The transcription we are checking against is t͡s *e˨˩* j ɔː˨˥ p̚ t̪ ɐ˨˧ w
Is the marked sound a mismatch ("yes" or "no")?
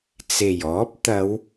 no